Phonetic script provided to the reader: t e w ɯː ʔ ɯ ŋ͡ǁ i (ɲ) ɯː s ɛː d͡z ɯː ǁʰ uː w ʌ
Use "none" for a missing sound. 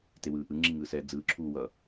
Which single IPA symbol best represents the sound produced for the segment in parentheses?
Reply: ŋ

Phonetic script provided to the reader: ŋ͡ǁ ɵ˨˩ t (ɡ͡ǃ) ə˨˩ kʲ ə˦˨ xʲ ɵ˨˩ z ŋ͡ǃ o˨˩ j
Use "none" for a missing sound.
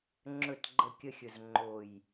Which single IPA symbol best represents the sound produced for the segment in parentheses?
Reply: ɡ͡ǃ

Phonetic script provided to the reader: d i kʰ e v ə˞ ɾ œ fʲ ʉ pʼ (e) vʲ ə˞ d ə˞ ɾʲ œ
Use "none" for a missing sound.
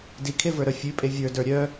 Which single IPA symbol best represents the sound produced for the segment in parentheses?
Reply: e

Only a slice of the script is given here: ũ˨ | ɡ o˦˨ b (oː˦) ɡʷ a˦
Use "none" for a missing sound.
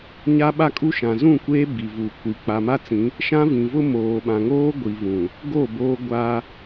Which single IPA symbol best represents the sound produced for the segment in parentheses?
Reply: oː˦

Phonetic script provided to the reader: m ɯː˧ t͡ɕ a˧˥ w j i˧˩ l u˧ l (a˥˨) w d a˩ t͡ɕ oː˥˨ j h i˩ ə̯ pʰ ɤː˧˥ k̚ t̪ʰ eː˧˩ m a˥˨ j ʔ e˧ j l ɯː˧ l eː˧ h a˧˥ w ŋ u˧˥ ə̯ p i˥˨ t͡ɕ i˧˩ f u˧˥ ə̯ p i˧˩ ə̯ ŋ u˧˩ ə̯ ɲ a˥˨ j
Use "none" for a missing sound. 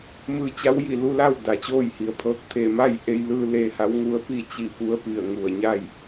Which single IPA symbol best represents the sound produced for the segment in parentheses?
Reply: a˥˨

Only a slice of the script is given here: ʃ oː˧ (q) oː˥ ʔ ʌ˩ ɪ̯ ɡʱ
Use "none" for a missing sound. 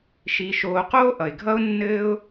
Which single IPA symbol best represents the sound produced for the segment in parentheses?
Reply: q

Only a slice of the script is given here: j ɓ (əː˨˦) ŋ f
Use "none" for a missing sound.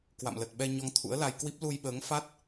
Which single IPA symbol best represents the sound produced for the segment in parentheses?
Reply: əː˨˦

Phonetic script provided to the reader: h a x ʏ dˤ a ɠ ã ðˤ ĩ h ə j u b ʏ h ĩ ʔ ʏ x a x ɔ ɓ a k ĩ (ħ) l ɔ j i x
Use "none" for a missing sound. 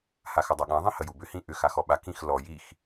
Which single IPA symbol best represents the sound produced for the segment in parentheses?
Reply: x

